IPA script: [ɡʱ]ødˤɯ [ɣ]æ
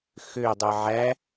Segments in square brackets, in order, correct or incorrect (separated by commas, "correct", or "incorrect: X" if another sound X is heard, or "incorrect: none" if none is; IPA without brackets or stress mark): incorrect: x, incorrect: ʕ